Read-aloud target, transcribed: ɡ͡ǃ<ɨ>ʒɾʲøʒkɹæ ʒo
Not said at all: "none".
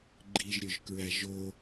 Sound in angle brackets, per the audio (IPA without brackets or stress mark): i